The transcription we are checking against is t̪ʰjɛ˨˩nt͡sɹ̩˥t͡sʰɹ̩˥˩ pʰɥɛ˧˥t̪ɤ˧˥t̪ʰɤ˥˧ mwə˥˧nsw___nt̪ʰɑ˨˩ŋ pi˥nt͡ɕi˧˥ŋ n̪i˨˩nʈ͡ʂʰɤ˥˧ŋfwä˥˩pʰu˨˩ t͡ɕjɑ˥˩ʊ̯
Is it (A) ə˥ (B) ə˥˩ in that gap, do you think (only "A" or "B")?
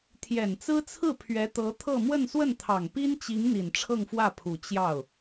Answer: B